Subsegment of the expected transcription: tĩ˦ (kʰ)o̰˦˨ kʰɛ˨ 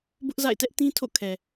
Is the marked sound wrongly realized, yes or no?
yes